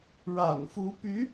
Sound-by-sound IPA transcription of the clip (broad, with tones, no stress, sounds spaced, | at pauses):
ɻ a̰˨˩ n f u˧˥ p y˧˥